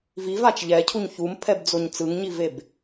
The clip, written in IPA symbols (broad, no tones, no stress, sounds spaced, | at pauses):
v i v a t͡ʃ ʎ ɛ cʰ u ɲ ç u m pʰ ɛ b d͡z o ɲ t͡s ɯ ŋ ɲ i v e b